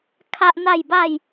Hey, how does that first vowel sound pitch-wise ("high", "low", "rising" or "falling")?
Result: high